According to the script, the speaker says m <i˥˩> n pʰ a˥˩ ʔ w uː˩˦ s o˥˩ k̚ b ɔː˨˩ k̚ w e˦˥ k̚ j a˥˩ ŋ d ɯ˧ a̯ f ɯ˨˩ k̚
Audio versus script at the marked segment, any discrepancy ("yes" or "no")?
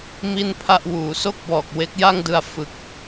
no